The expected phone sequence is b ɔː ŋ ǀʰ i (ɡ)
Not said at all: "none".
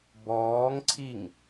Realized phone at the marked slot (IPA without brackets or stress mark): ŋ